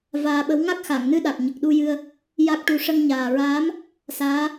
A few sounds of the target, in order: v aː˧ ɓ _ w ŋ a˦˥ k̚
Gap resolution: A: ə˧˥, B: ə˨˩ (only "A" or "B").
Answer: A